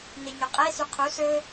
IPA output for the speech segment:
n e ɲ ɵ qʼ e s y qʰ u s ɵ

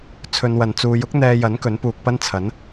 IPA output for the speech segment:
t͡sʰ ɵ˧ n w ɐ˨ n t͡s uː˨˧ j ʊ˥ k̚ n̪ ɛː˧ j ɐ˨˥ n k ɵ˨˥ n p uː˧ k̚ p ɐ˥ n t͡sʰ ɐ˨˥ n

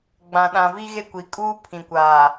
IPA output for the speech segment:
ɡ͡b ã˨ ɗ ã˨ v i˦ ɣ e˦ kʷ i˨ kʼ uː˦ pʰ ĩ˨ kʷ aː˨

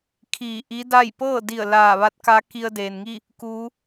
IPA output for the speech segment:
kʰ iː˧˩ ʔ i˧˥ d a˥˨ j p ɤː˥˨ d i˧˩ ə̯ l aː˧˩ ʋ a˧˥ t̚ k a˧˥ k i˧ ə̯ d eː˩ n ŋ i˥˨ | k uː˧˥

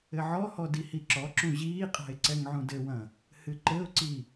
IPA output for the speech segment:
ɘ ʕ ɔ h ɔ d i h i ǁ ɔ ǁ ũ ʑ iː qʼ a̤ ɪ̯ ǀ ɛ ŋ ʕ ũ d ɘ w ɐ̃ | h ɨ ǃ ɘ ʊ̯ ǀ i

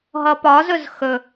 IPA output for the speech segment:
ɦ ʌ p ɒ z ɵ z x ɵ

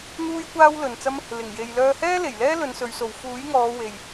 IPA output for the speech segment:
n̪ uː˥ j kʷ aː˥ w l ɵ˨ n t͡s ɐ˥ m | l ɪ˨˩ ŋ j e˨ j l œː˧ h ɛː˥ l e˨˩ j l ɛː˥ l ɵ˨˧ n s ɵ˨˧ ɥ s o˨ w f uː˨˥ j ŋ ɔː˨˧ w e˨ j

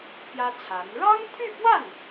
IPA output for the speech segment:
p j ä˥ t͡sʰ a˧˥ n ɻ ɑ˥ ŋ t̪ʰ y˥˧ p w a˥˩ n

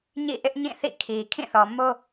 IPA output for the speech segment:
ɲ ḭ˦˨ ʔ ɪ˦ ʔ ɲ ĩ˦˨ θ ḭ˦˨ kʰ i˨ kʰ ĩ˦˨ θ ɔ˨ m o˦

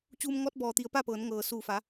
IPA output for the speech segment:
t͡ɕ uː˧ m ŋ ɔː˧˥ t̚ b ɔː˩ t̪ i˩˧ ə̯ p a˥˨ p ɤː˩˧ n ŋ ɤː˩ s uː˧˩ f a˩˧

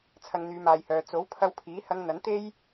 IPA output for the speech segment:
t͡sʰ ɐ˧ ŋ n̪ yː˨˧ m aː˨ j h œː˨ t͡s o˨˥ w pʰ ɐ˧ w pʰ iː˨˥ h ɐ˧ ŋ n̪ ɐ˨˥ n t̪ e˥ j

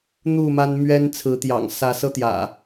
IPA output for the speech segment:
n̪ u˥˨ m a˦ n m ɥ ɛ˦ n t͡sʰ ɹ̩˨˦ t̪ j ɑ̰˨˩ ŋ s ä˨˦ s ɤ˦ t̪ j ä̰˨˩

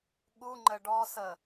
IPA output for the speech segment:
ɠ u ŋ͡ǃ ə ɖ ɔ s ə

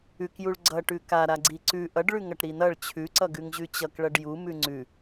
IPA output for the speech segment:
ʉ k j u ɭ ɡ͡ǀ ʌ ʈ ʉ k a ɾ a ɡ͡ǀ i ǀ ʉ ʔ ʌ ɖ ɭ ʉ ŋ ʌ ʈ ɾ i n ʌ ɭ t͡ɕʰ ʉ ǀ ʌ ɡ ʉ ŋ ʑ ʉ t͡ɕ ʌ k ɭ ʌ ɖ j u m ʉ ŋ͡ǀ ʉ

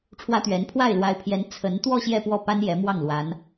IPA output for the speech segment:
ʈ͡ʂʰ w ä˥ t̪ ɥ ɛ˧˥ n pʰ w a˥˩ ɪ̯ l w a˧˥ ɪ̯ pʰ j ɛ˧˥ n t͡sʰ ə˧˥ n t̪ w ɔ˥˧ ɕ j ɛ˥˧ p w ɔ˥˩ p a˥ n j ɛ˧˥ m w ɑ˥˩ ŋ l w a˧˥ n

